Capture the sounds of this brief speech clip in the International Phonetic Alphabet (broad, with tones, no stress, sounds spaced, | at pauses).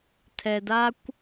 tʰ ɛ˨ d a˦ kʷ